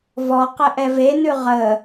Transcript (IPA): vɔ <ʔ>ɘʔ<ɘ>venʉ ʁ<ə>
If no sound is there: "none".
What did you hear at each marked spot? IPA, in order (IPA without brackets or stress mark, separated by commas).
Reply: q, ɛ, ə